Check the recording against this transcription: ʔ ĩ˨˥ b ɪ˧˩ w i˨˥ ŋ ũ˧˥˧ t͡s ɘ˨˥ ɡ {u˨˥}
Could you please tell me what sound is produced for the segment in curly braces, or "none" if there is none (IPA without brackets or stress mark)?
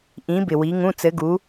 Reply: u˨˥